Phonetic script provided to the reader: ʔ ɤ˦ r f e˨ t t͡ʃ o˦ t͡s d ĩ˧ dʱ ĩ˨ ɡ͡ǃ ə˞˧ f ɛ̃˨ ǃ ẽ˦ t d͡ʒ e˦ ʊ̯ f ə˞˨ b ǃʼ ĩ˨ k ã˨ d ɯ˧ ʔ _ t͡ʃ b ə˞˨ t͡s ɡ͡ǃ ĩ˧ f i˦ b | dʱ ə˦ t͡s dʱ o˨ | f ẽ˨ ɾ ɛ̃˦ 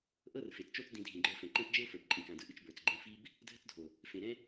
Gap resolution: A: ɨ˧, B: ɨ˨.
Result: A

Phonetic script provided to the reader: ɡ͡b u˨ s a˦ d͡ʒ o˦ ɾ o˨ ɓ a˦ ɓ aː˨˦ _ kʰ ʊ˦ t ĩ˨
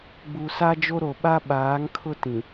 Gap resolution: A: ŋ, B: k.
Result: A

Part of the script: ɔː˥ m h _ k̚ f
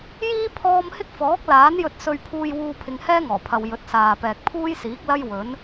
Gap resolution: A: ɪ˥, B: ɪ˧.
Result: A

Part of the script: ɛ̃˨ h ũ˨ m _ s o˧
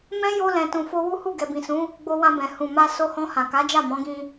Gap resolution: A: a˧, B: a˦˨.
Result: A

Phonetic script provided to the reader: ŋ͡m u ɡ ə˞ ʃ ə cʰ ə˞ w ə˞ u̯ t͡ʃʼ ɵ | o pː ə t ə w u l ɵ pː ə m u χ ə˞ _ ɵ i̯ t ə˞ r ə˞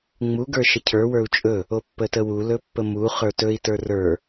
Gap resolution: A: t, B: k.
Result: A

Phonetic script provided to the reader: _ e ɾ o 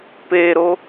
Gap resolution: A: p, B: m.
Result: A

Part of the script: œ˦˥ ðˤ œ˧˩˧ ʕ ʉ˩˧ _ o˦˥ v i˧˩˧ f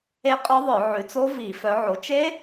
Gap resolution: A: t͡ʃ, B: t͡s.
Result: B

